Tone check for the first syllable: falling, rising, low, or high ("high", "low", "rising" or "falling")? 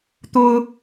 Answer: high